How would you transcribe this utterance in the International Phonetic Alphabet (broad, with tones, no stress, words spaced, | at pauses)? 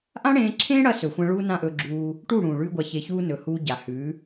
ʔã˦ɽẽː˧ǁʰẽː˦ɽɐ˧ sɵ˨xʷɐ̃˧ ɭuː˧ nã˦ʔɵ˧ɡ͡ǁuː˧ | ʈu˦˨ɽũː˨ɭʉː˧ ɡʷa˧çe˧çuː˦ nɵ˨ huː˧ɟa˨hʉː˨˦